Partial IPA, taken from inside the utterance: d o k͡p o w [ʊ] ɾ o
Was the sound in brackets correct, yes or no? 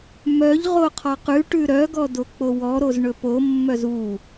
no